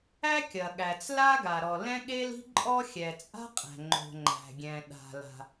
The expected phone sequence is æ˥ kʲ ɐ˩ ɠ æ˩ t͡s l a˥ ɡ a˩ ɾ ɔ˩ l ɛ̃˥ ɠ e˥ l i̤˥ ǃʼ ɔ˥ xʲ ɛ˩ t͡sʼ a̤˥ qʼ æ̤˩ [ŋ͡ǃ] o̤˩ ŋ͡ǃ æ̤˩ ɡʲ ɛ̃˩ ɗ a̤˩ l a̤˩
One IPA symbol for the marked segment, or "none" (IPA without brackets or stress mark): ŋ͡ǃ